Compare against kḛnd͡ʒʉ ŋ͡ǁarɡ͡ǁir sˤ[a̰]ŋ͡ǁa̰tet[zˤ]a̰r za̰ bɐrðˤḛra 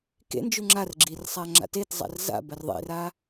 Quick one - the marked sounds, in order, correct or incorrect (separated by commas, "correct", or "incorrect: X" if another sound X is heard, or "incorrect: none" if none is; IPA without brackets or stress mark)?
incorrect: a, correct